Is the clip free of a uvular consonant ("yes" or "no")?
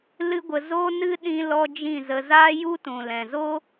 yes